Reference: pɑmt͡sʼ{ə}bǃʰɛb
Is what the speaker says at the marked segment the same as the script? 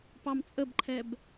yes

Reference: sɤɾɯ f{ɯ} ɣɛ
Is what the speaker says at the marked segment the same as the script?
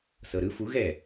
no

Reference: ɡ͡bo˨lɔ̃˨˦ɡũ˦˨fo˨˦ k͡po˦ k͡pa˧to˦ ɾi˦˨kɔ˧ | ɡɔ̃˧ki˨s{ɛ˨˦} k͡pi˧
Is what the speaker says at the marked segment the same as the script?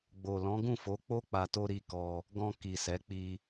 yes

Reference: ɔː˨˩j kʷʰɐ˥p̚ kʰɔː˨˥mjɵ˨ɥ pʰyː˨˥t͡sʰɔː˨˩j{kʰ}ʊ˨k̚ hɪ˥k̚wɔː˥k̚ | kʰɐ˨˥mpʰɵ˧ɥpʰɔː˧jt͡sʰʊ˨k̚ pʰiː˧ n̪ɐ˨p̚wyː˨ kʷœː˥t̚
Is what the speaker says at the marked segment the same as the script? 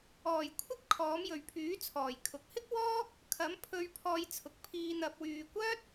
yes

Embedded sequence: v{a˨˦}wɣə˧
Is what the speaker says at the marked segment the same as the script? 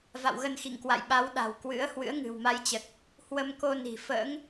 no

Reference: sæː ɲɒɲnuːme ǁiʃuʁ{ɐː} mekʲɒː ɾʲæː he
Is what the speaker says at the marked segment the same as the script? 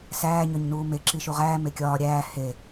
no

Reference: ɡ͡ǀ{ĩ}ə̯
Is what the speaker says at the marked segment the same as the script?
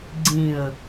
yes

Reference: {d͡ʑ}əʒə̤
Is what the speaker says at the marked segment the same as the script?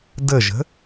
no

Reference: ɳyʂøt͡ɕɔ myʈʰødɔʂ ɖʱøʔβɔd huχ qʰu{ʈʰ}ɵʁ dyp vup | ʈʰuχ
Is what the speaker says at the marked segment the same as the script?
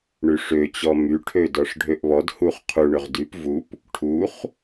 no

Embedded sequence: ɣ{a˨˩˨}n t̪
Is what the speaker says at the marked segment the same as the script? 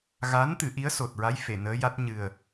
no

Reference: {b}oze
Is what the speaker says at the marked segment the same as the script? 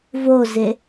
no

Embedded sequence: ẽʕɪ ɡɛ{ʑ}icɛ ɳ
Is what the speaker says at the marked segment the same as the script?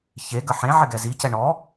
no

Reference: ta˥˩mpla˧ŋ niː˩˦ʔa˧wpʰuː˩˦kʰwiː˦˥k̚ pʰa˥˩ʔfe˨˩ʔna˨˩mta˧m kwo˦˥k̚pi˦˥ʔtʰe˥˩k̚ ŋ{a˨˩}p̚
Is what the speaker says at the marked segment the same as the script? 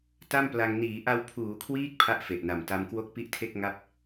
no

